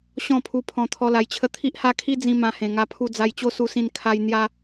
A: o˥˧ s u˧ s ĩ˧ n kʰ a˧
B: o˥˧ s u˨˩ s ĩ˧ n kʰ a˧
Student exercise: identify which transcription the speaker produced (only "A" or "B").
A